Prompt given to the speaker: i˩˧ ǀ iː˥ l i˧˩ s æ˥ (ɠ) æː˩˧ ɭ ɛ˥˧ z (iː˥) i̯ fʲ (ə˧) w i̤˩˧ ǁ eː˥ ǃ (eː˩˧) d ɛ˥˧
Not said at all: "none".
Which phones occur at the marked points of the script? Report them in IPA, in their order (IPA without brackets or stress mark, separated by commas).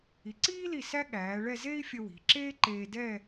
ɠ, eː˥, ə˧, eː˧